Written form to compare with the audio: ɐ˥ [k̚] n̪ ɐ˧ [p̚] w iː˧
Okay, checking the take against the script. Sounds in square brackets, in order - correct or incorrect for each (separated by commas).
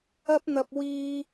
incorrect, correct